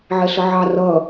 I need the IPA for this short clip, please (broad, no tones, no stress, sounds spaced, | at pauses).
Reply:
ʕ ɛ ɬ ʌ ʕ ɑ r ʌ